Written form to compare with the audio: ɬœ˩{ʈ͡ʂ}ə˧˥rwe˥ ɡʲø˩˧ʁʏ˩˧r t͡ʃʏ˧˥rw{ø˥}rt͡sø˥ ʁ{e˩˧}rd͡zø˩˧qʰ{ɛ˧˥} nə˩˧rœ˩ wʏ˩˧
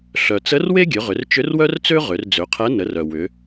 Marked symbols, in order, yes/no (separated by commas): no, no, no, yes